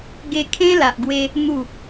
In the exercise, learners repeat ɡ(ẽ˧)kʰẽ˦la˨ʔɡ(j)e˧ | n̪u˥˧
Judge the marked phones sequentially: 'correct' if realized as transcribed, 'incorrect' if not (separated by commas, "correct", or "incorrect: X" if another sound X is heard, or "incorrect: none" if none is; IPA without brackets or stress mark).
incorrect: e˧, incorrect: w